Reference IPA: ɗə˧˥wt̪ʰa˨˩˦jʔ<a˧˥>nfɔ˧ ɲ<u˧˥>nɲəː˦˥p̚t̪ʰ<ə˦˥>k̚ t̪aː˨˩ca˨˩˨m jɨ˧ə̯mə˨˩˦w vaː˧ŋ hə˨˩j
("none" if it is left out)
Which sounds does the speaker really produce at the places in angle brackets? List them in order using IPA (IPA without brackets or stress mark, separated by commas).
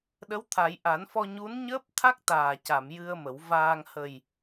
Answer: a˨˩˦, u˧˥, a˦˥